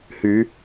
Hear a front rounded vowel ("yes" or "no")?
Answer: yes